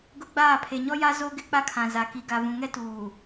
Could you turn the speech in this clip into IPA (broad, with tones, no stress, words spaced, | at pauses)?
ɡʊ˦ɡ͡baː˦˨ pʰe˨ɲɔ˦ja˦ zo˦ ɡɪ˦k͡pa˦kʰã˨ za˨ki˨ ɡa˨vũ˨ŋɛ˦tuː˨